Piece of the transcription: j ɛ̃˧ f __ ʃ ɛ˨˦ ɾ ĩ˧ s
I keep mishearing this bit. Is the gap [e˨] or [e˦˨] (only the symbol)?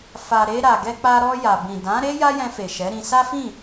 e˨